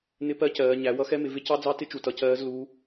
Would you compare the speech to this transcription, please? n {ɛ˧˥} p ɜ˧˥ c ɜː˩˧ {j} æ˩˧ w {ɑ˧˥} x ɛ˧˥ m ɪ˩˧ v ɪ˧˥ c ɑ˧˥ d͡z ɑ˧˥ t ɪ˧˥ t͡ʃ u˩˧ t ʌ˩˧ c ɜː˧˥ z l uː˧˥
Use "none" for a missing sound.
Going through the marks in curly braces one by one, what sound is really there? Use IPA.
ɪ˧˥, ɲ, ʌ˧˥

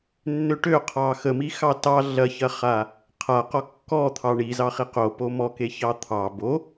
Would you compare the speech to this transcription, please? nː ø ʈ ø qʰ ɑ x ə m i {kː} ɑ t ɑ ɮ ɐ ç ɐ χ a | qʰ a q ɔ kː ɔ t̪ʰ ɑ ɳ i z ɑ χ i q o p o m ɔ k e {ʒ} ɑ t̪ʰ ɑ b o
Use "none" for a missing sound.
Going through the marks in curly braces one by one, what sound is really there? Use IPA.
x, ç

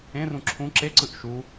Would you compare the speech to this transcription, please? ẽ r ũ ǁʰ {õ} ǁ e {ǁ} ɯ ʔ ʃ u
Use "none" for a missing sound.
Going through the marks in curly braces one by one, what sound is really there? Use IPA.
ũ, ǀ

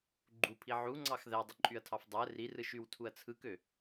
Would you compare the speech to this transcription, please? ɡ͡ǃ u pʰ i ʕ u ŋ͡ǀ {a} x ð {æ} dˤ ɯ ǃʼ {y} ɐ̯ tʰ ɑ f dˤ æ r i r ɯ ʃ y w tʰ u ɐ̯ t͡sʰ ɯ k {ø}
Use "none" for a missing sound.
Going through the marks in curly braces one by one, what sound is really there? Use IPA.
ɑ, æ, y, ø

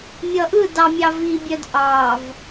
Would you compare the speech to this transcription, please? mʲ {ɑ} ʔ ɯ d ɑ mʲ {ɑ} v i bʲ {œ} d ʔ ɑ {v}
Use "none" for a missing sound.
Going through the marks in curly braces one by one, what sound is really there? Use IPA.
ʌ, ɑ, œ, v

